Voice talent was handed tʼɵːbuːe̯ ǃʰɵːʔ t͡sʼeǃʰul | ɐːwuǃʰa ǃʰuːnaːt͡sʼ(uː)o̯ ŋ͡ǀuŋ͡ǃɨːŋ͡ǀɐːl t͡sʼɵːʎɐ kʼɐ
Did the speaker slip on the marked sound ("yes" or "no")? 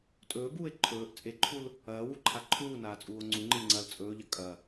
no